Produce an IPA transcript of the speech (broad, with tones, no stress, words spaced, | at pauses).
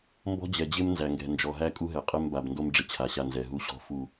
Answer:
mbɔ̤˦d͡ʑɛ˨d͡ʑɪ˦m nzæ˨ŋɡɛ̤˨ nd͡ʒɔ˨ɦæ˦ kʼu˦ɦɛ˨ qʼɛ˦mba˨bndo˦m ɖ͡ʐɪ˦t͡ɕʰa˨ɕa˦˨nzɛ˨ ɦu˦ɕɔ̤˦ fu˦˨